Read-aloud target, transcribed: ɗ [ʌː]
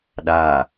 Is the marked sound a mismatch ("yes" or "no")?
yes